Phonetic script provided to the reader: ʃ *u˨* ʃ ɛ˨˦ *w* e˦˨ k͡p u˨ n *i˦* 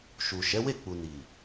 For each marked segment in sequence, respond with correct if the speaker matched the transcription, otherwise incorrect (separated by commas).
correct, correct, incorrect